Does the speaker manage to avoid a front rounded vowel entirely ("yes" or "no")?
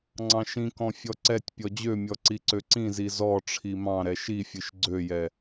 no